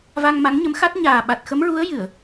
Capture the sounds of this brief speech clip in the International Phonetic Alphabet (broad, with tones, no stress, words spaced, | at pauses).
va˧ŋma˧˥ŋɲə˧˥mxa˦˥t̚ ɲaː˨˩ ɓa˨˩t̚xə˧˥mɹu˧˥ə̯ jɨ˨˩˨ə̯